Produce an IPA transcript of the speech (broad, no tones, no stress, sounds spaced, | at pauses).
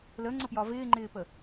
l ə ŋ͡ǀ ə p j ɒ v ɪː ŋ͡ǃ ɪː p ə